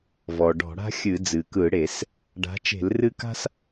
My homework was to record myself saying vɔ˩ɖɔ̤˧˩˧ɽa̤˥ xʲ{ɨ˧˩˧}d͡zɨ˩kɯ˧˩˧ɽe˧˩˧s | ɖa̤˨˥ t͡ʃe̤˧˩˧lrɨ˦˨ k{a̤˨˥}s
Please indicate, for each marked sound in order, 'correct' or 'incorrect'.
correct, incorrect

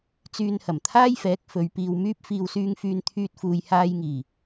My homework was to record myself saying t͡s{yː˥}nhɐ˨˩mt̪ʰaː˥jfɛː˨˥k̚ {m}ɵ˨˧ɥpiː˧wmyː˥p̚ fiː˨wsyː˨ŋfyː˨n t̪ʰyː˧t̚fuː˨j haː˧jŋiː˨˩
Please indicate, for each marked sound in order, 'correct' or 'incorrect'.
incorrect, incorrect

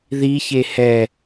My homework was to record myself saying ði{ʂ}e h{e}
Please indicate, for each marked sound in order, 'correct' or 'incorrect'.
incorrect, incorrect

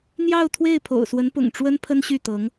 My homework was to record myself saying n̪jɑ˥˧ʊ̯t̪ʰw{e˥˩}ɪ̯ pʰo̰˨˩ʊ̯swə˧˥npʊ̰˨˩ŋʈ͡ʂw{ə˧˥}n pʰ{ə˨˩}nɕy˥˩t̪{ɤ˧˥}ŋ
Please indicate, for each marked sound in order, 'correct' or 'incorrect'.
correct, incorrect, incorrect, correct

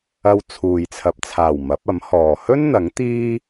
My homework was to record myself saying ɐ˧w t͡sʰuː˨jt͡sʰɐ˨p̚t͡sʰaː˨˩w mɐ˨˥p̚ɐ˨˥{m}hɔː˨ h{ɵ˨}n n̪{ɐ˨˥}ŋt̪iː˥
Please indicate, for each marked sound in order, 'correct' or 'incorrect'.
correct, incorrect, correct

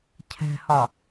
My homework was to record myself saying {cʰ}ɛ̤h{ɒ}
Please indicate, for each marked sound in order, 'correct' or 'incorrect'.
correct, correct

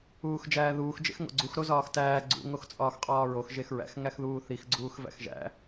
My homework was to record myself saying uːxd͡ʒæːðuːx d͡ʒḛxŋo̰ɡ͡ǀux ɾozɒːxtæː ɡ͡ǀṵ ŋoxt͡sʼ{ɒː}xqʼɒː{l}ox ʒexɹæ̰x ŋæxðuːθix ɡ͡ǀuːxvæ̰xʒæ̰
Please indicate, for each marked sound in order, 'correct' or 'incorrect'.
correct, incorrect

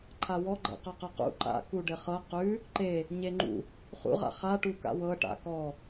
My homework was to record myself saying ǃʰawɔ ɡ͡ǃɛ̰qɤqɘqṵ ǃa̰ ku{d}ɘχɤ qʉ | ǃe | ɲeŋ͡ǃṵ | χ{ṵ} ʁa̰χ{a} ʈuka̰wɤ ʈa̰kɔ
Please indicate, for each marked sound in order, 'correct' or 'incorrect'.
incorrect, correct, correct

